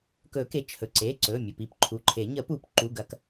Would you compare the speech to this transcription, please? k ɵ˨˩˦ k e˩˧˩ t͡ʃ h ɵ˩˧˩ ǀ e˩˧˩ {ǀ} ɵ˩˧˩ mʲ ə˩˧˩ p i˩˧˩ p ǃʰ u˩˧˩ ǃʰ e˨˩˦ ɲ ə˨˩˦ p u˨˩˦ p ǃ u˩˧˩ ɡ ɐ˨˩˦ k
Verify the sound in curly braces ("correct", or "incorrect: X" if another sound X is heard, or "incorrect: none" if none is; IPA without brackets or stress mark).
correct